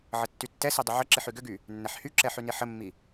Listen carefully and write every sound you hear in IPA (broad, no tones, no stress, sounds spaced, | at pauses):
ʕ ə tː y tː ɛ s i dˤ ʏ ʕ ə ǁ i ħ y ɡ ʏ ɡ y | nː ɛ ħ h y ǁ ɛ ħ y n i ħ ə mː i